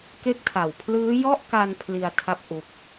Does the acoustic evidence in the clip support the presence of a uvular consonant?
no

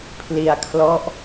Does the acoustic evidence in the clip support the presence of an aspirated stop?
yes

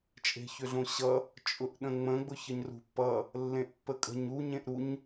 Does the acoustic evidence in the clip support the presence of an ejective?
yes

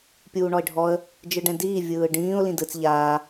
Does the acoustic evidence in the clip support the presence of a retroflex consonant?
yes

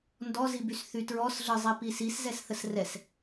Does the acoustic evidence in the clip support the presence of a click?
no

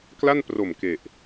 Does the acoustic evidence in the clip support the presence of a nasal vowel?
no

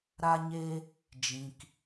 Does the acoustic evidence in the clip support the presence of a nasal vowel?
yes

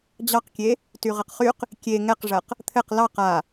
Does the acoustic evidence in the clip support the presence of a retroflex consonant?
yes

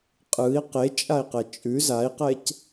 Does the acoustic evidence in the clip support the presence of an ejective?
yes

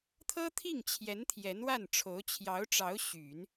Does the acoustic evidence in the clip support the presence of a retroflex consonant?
yes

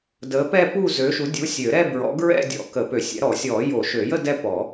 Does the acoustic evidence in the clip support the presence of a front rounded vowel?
yes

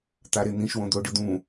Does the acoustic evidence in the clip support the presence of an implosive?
no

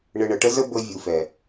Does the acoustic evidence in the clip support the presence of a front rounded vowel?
no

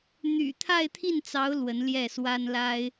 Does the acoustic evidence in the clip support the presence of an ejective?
no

